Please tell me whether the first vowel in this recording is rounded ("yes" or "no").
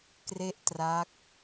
no